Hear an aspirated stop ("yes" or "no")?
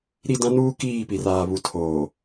yes